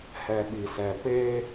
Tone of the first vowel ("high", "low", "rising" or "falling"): low